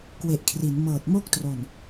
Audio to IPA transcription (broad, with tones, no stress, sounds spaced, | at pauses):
k w e˨˩ ʔ kʰ r i˩˦ n m ɤː˨˩ t̚ m o˥˩ k̚ t r o˨˩ n